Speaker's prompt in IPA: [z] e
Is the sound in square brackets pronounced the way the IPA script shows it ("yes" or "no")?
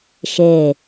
no